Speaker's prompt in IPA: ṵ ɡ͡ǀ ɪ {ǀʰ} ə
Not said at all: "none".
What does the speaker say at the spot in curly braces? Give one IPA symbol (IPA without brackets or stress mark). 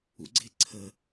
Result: ǀʰ